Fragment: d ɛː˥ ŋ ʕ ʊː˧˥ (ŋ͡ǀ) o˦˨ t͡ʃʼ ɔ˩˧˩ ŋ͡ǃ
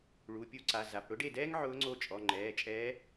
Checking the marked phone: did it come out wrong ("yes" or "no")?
no